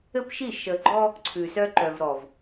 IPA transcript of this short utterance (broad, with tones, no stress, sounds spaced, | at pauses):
ɘ˦ p ʃ i˦˨ ʃ ə˨ ɡ͡ǃ ɔ˦ | ǀʰ ʉ˨ s œ˦ ǃ œ˨ v ɾ ɔ˨ v